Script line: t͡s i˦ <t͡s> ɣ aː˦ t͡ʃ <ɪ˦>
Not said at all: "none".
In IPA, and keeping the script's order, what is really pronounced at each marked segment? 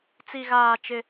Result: none, ɪ˦

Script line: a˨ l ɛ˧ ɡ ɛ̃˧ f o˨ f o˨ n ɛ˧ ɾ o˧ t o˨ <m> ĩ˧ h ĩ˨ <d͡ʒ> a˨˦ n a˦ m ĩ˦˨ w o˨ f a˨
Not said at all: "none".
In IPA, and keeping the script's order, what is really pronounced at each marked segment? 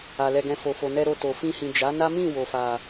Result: f, d͡ʒ

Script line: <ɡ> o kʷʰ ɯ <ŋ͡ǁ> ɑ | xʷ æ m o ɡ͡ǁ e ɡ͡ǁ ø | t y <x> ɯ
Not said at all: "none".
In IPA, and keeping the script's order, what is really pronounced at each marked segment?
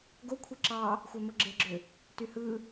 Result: ɡ, ǁ, h

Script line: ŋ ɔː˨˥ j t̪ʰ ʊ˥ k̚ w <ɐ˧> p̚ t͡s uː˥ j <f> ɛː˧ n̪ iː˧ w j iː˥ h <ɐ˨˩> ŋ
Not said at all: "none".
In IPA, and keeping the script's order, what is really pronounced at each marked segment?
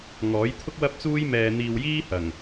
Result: ɐ˥, m, ɐ˨˩

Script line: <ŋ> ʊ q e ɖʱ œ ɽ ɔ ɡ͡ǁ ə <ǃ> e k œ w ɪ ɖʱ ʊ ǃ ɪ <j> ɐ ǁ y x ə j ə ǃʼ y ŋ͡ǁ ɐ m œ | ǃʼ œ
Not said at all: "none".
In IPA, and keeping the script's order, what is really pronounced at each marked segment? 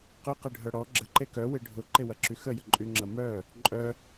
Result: q, ǃ, w

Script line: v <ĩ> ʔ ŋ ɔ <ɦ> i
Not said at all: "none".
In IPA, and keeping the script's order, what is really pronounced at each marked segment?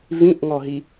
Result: ĩ, ɦ

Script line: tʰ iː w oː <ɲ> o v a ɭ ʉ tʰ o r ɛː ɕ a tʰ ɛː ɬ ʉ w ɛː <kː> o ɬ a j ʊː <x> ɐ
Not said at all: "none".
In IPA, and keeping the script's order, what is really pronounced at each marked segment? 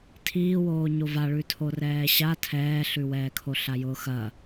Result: ɲ, kʰ, x

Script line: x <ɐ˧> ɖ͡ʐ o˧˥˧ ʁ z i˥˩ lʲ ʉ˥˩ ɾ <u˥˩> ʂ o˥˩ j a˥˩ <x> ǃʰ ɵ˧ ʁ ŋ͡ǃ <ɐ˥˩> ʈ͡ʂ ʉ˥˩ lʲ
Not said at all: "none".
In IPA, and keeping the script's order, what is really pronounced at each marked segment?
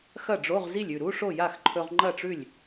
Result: ɐ˥˩, u˧˥˧, x, ɐ˥˩

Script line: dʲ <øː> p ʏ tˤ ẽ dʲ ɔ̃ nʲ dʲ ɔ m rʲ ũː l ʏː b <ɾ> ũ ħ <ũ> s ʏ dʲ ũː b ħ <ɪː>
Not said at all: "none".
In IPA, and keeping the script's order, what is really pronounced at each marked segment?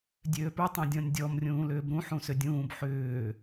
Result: øː, ɾ, ũ, ʏː

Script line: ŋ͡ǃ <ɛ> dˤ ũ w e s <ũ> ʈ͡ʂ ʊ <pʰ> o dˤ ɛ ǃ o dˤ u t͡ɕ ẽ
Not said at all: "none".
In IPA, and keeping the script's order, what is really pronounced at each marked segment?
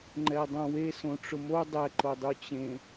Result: ɛ, õ, m

